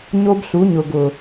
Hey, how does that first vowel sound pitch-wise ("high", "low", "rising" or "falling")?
high